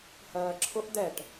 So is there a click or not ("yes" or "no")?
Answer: yes